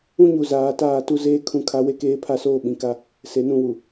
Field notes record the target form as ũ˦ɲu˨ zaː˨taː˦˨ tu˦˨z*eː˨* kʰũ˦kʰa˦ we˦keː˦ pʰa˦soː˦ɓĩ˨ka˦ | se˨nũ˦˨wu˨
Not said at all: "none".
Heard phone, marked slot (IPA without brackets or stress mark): eː˦